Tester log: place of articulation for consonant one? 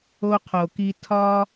uvular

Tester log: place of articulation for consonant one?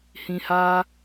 glottal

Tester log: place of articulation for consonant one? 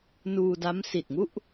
alveolar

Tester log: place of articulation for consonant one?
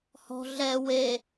glottal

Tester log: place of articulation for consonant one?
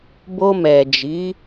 labial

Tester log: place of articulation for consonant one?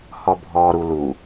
glottal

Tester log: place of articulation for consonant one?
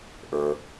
glottal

